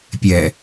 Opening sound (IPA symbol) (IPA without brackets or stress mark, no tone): pʲ